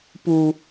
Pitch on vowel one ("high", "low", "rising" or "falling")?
low